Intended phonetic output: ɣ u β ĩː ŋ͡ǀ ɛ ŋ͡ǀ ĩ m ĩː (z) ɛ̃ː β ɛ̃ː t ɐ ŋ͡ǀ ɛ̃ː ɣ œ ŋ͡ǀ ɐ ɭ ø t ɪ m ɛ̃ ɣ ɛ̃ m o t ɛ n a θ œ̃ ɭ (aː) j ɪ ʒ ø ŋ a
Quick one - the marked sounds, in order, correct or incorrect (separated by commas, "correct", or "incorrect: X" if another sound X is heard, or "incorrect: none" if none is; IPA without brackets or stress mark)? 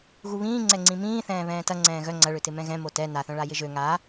incorrect: θ, incorrect: a